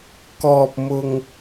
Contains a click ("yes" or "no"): no